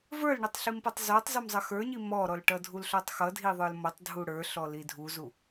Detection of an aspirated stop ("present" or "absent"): absent